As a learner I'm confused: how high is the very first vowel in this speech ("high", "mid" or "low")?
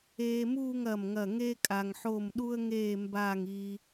mid